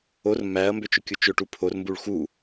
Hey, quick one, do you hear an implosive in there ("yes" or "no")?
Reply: no